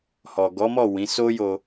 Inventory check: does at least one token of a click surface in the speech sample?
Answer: no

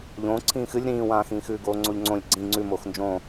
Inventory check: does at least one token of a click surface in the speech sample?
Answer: yes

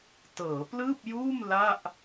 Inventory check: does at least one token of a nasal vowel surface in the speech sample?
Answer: no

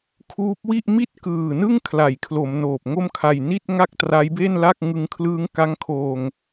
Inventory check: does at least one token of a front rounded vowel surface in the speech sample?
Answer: no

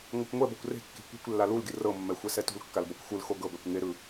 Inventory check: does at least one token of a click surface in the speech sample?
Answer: no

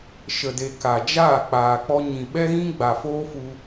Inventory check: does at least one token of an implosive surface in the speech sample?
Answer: yes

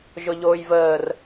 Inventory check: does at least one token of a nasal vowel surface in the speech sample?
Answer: no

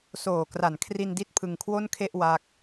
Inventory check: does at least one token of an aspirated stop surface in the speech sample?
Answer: yes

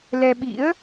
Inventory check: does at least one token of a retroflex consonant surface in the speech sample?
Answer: no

